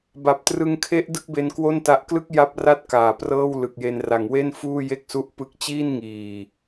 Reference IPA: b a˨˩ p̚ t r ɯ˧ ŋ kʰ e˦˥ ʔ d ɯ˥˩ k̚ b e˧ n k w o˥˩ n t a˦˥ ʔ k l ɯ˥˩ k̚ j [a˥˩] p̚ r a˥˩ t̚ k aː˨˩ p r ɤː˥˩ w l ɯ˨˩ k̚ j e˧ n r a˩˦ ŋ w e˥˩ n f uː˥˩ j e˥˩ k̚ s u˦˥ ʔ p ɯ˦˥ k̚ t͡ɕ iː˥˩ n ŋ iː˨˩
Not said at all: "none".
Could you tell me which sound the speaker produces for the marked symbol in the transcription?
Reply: a˦˥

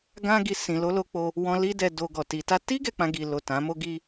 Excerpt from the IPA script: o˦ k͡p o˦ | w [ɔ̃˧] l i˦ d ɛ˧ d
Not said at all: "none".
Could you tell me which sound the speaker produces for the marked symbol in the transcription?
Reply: ɔ̃˧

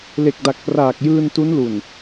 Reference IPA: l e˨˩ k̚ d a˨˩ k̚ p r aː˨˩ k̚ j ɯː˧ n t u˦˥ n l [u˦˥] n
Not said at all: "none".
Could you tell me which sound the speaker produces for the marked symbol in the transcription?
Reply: u˨˩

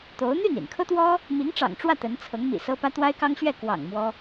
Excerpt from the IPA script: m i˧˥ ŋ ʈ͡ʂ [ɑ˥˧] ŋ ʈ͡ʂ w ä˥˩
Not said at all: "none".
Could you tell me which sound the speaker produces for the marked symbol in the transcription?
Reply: ɑ̰˨˩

